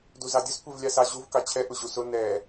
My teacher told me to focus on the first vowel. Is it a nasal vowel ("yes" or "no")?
no